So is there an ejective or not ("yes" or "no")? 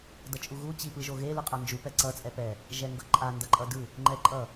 yes